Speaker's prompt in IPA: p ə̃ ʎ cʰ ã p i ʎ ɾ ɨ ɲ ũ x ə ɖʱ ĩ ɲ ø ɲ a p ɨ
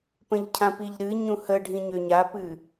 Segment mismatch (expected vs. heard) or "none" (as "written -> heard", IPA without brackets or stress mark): x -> h